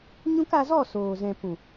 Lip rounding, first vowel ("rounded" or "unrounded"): rounded